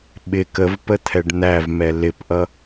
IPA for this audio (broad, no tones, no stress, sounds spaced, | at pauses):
ɓ ɪ k ə v p ə t̪ʰ ɛ ɖ n̪ æ v m ɛ l ɪ p ʔ ʌ